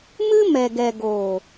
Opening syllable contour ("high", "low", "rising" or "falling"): high